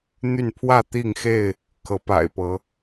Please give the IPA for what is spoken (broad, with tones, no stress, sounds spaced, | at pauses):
n̪ y˥˨ n pʰ w ä˥˨ t̪ i˥˨ ŋ x e˥˨ ɪ̯ | kʰ ɤ˨˦ p a̰˨˩ ɪ̯ p ɤ˨˦